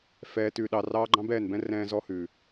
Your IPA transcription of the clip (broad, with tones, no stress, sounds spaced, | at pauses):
f ɛː˨ t ʉ˨ ɗ ɑ˨ r ɑː˦ ɡ͡ǃ ɑ̃˦ b ɛː˦˨ n b ɛ̃˦ r ɛ̃ː˦ z ɔ˦ h ʉ˨